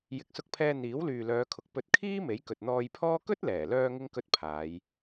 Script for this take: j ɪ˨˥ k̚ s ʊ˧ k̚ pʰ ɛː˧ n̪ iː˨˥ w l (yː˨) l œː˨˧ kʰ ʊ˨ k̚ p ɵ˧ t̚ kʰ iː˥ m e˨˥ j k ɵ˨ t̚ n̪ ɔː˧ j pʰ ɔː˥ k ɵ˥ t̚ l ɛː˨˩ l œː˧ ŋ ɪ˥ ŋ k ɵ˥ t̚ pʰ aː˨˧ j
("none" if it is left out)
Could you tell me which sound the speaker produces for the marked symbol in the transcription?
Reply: yː˨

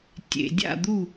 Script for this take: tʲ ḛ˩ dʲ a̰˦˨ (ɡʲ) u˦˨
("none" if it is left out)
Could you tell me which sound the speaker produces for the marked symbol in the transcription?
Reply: d̪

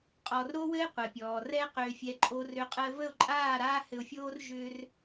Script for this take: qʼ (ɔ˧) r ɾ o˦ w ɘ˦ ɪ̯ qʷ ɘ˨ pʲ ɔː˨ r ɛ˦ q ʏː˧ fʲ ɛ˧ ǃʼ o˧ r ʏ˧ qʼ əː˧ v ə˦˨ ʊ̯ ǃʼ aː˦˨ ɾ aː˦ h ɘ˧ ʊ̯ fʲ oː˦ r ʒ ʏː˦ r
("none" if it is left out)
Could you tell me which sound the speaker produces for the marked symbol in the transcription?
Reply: ɔ˨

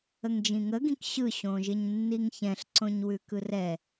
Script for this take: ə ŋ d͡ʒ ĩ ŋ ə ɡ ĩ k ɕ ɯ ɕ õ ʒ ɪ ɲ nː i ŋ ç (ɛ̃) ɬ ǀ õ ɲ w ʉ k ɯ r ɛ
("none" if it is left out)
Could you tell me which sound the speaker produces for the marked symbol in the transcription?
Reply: ɛ̃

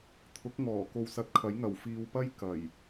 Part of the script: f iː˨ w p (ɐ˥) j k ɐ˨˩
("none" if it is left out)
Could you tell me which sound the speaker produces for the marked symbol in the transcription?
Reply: ɐ˥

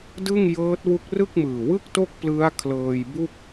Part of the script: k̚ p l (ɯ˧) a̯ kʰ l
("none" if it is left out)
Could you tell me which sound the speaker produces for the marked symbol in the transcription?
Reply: ɯ˦˥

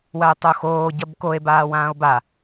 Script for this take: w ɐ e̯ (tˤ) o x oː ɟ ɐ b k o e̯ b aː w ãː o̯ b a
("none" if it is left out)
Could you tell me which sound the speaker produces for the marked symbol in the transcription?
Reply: tˤ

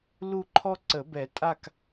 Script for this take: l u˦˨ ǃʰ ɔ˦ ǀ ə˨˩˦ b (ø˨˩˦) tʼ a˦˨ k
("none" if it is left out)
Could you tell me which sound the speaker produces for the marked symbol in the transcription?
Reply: ɛ˨˩˦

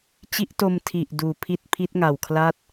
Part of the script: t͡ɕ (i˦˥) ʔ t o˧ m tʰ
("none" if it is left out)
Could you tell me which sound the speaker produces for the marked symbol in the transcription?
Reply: i˦˥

